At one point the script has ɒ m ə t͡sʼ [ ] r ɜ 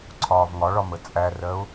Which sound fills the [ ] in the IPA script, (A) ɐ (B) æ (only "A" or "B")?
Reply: B